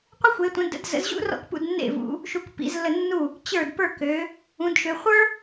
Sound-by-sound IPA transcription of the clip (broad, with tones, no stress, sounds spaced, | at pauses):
qʷ ə˥ xʷ e˨˦ tʷ ə̃˨˦ d ə̰˨˦ d z ə̰˨˦ z ʑ ṵ˥ r ɔ̰˥˩ k p ṵ˥˩ d nː ḛ˥˩ v ṵ˨˦ | ʃ u˨˦ k p ḭ˨˦ z lː ə˥˩ nː u˥˩ | t͡ɕ ə˞˥˩ d p ə˞˥˩ k ø˨˦ | ũ˨˦ d ʃ ø˨˦ χʷ ə˞˥